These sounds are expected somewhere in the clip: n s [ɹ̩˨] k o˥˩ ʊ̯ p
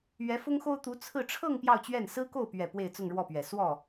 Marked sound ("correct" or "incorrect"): incorrect